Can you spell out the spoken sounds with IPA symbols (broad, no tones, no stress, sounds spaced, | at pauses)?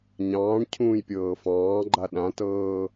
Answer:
ɲ ɑ̃ː ɳ cʰ ũː j pʲ ɤː f ɑ̃ː ɡ͡ǃ a ɗ ã t ɤː